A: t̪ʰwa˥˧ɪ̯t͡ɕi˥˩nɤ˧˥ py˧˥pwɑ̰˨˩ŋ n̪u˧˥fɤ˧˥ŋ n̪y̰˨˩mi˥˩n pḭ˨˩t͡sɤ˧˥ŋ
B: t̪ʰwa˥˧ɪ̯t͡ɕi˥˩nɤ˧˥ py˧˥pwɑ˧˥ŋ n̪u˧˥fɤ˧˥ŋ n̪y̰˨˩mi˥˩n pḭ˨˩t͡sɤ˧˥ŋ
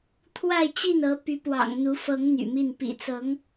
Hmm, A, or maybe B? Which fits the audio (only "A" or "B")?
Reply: A